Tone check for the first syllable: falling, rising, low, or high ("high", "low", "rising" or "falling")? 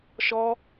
high